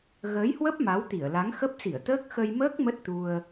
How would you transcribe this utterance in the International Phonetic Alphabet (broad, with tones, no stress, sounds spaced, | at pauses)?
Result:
ɣ əː˨˦ j h w ə˦˥ p̚ m a˨˦ w t̪ i˧˩ ə̯ l a˨˦ ŋ x ə˦˥ p̚ s i˧˩ ə̯ t̪ əː˦˥ k̚ x ə˧ j m əː˦˥ k̚ m ə˦˥ t̚ t̪ u˧ ə̯